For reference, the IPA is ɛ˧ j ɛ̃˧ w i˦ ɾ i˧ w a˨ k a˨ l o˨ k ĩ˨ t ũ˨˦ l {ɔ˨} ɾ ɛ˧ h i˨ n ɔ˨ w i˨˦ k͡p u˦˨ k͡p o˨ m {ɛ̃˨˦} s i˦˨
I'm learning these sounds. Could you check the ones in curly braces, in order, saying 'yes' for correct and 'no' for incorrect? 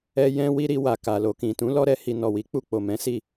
no, yes

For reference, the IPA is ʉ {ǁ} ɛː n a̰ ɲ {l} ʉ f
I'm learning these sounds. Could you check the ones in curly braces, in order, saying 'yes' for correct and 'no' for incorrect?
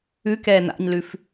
no, yes

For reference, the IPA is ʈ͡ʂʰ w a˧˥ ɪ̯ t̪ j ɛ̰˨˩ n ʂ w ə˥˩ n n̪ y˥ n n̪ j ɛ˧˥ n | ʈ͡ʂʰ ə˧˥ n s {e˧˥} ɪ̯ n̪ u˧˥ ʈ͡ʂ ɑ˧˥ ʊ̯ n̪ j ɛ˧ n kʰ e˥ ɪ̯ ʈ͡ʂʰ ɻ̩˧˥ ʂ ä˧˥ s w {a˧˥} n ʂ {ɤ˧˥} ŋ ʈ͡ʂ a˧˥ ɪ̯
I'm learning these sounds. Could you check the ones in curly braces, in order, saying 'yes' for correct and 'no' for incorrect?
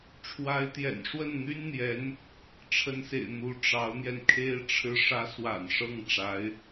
no, no, no

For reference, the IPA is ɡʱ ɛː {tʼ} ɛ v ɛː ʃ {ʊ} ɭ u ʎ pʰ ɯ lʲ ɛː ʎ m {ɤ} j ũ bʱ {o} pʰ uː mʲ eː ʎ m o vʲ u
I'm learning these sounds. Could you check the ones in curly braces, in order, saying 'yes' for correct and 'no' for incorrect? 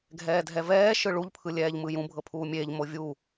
no, no, no, no

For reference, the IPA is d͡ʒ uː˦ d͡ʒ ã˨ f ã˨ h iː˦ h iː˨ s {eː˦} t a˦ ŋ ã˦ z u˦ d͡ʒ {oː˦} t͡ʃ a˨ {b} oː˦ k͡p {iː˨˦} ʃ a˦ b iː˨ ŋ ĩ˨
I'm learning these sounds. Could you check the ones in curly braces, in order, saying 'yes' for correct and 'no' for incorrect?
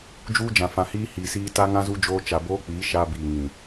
no, yes, yes, yes

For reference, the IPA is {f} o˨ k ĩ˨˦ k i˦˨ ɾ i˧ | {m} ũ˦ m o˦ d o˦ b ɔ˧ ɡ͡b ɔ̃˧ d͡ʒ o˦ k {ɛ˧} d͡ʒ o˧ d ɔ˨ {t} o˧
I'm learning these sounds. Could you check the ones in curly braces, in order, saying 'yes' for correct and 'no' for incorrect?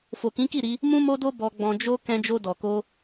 yes, yes, no, no

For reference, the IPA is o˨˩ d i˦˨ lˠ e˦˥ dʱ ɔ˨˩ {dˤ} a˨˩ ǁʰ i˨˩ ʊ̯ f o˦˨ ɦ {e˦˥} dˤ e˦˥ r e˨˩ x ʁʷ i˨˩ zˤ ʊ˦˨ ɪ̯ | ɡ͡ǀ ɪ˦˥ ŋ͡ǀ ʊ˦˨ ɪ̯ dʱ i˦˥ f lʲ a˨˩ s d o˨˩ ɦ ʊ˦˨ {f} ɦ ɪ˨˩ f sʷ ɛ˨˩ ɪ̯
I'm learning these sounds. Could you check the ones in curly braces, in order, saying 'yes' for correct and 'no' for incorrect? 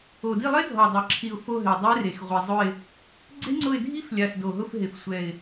yes, no, yes

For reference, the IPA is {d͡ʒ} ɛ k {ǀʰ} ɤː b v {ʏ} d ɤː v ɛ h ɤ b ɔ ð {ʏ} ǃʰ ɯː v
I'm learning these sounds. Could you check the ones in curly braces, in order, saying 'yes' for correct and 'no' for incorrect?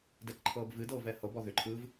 no, no, no, yes

